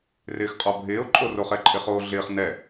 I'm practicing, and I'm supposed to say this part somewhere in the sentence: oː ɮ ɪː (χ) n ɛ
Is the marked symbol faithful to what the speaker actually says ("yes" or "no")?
yes